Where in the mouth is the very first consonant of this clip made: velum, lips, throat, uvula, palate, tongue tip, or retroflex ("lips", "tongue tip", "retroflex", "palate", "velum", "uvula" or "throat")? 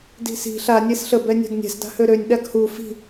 tongue tip